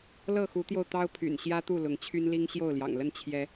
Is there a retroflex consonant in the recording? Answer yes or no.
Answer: no